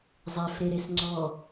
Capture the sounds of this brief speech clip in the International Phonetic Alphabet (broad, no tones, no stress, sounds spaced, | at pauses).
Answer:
zˤ ɛ f ɾ e ɾ e s ŋ͡ǀ ɔ